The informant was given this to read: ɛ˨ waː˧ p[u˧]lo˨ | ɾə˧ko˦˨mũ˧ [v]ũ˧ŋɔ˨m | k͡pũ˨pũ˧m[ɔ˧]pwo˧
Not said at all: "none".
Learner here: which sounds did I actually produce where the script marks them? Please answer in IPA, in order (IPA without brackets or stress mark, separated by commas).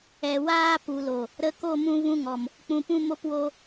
u˨, v, o˧